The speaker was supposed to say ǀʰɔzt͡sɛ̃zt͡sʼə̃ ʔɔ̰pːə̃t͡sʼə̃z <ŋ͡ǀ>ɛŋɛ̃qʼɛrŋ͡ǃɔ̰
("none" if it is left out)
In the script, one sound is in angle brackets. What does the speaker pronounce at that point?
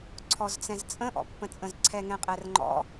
ǀʰ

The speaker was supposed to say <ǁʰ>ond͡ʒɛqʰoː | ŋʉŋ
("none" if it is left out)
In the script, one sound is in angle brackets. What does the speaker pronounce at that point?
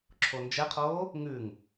ǁʰ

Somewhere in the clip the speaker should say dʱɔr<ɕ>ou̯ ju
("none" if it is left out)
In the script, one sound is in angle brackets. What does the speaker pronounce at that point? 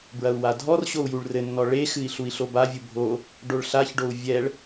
ɕ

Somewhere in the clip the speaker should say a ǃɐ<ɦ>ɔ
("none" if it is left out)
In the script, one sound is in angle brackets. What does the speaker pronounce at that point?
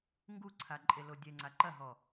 ɦ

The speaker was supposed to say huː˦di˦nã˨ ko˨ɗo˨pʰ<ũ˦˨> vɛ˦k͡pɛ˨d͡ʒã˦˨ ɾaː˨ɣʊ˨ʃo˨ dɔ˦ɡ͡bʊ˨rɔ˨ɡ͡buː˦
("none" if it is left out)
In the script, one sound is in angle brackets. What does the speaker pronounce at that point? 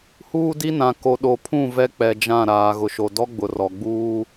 ũ˦˨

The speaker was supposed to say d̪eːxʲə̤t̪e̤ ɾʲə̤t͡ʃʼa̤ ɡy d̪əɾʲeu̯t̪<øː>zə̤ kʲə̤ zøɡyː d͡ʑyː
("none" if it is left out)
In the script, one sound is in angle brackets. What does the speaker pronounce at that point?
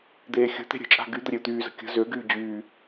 yː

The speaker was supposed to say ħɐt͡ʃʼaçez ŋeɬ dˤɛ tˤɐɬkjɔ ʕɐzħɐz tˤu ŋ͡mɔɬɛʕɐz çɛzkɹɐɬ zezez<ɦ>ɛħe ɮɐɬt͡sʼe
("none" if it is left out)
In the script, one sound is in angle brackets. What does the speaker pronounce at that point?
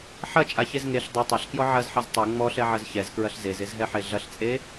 ɦ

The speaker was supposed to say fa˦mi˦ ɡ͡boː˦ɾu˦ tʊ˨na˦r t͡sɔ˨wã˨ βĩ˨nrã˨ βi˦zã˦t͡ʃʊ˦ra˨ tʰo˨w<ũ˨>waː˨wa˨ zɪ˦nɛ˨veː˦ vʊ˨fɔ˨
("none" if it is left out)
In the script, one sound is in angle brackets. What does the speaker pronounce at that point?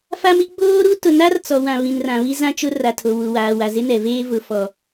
u˨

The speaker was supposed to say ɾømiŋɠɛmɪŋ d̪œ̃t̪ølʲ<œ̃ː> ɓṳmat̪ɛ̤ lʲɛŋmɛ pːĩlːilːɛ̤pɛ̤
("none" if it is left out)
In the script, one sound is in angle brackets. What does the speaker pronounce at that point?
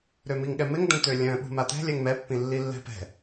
œ̃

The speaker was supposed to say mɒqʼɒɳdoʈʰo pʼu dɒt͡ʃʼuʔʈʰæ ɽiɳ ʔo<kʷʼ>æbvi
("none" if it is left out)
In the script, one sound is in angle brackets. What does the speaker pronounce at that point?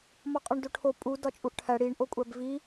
kʷʼ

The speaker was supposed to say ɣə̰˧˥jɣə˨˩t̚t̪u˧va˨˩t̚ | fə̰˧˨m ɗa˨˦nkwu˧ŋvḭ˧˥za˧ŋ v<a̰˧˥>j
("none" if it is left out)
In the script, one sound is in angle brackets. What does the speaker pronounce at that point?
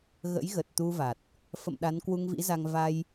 a˧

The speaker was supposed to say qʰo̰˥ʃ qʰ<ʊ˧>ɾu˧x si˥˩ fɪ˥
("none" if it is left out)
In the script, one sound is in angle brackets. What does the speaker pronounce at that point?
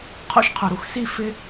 ʊ˩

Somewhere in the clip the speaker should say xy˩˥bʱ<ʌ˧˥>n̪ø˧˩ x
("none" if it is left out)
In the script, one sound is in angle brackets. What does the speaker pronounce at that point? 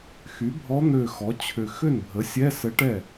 ɔ˧˥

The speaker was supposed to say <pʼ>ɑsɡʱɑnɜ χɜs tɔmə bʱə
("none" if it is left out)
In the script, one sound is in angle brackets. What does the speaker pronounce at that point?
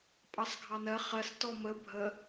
pʼ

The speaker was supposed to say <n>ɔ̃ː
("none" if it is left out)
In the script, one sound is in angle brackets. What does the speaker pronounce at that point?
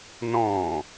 n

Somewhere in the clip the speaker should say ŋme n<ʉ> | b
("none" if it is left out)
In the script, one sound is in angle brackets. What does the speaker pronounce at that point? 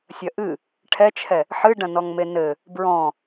ɘ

